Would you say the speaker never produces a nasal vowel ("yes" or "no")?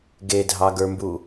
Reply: yes